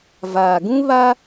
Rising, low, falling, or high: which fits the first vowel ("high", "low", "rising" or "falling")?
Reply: low